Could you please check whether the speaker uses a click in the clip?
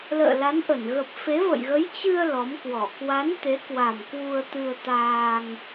no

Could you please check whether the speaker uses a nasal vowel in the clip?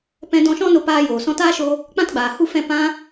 yes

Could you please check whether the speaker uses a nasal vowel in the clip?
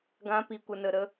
yes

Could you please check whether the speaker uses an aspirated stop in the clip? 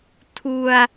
yes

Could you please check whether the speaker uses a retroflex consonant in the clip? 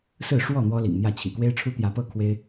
yes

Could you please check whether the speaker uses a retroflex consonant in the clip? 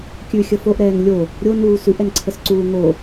no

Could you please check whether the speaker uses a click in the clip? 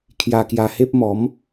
no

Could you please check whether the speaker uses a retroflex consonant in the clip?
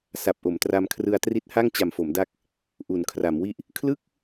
no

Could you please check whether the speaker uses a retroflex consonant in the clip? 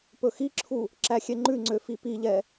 no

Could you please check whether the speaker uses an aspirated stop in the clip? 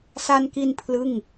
yes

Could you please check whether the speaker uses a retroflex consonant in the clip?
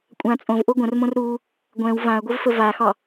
no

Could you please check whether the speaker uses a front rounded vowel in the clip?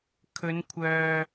yes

